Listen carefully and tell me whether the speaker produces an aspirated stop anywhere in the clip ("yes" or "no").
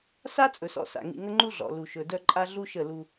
no